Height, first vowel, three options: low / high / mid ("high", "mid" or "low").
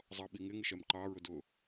mid